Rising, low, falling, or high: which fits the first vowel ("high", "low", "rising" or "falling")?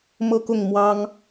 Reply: high